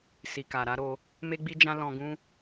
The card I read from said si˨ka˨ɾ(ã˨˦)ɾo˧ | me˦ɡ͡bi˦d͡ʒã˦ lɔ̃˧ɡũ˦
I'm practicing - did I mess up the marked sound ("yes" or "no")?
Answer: yes